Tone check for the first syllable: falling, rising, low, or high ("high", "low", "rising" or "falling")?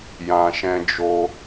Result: low